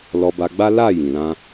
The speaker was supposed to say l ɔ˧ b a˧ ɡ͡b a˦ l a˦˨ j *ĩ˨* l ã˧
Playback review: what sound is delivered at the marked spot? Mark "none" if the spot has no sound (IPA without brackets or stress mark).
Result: ĩ˨